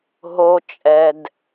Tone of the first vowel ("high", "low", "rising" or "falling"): low